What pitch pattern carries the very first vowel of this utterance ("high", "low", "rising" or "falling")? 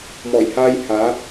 low